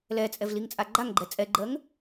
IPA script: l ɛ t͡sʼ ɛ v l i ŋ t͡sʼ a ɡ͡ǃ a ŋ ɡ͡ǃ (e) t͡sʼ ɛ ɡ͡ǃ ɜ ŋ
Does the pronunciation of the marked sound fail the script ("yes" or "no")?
yes